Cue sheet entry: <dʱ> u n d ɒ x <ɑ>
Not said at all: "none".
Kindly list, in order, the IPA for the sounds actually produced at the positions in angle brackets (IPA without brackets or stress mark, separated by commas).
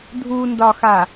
dʱ, a